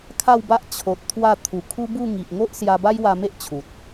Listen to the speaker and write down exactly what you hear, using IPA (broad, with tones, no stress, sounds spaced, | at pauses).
kʰ a˥˧ w b a˦ ʔ t͡ɕʰ o˨ t̚ t̪ʰ w a˥˧ t̪ʰ u˨˩ kʰ u˦ b u˥˧ ŋ i˨ ʔ ŋ o˦ ʔ s j a˧ b a˦ j w a˧ m e˦ ʔ t͡ɕʰ u˨ t̚